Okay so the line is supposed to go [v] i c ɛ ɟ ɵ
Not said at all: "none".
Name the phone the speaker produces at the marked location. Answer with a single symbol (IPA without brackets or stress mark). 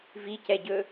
v